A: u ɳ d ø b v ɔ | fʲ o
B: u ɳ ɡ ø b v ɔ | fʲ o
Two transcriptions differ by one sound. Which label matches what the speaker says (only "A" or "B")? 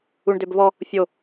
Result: A